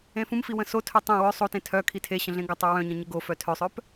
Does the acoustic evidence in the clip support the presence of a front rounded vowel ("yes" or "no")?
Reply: yes